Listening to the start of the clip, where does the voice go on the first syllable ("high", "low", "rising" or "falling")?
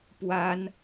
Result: high